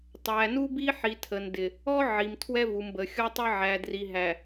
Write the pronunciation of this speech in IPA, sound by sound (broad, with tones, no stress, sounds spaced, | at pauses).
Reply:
tˤ æ˨ n u˦ b i˦ ħ i˨ tʰ ə˨ n d ɪ˨ | ɔ˦ ʕ i˨ m tʰ w ɛ˦ v u˨ m b ə˨ xʲ ɔ˦ tˤ ə˦ ʕ æ˨ d r i˨ ɦ æ˨